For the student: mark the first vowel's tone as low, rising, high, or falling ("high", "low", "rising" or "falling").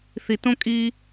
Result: low